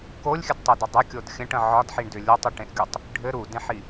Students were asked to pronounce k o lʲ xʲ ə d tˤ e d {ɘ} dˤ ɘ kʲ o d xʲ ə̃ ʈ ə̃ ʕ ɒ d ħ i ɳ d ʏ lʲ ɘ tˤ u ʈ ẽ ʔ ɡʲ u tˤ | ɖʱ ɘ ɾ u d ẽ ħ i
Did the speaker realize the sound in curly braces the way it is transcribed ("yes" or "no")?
yes